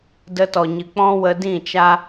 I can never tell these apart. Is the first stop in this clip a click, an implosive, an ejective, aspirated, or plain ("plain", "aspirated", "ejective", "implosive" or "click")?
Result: plain